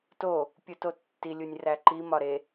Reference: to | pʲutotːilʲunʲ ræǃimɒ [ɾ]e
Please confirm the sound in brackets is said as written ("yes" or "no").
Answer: yes